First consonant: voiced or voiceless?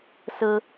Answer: voiceless